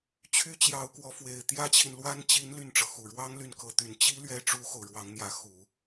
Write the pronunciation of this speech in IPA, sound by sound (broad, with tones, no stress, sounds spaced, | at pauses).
t͡ɕʰ y˥ t͡ɕ j ɑ˧˥ ʊ̯ k w ɔ˧˥ f w e˨˩ ɪ̯ t̪ j ä˥ t͡ɕʰ i˨ n l w a˥ n t͡ɕ i˧˥ n l y˥˩ n ʈ͡ʂ ɤ˩ x u˨˩ ɻ w ɑ˥ ŋ l y˥˩ n k ɤ˧˥ t̪ y˨˩ n t͡ɕ i˥ l ɥ ɛ˥ ʈ͡ʂ u˥ x o˨ ʊ̯ ɻ w ɑ˧˥ ŋ n̪ j ä˧˥ x u˨˩˦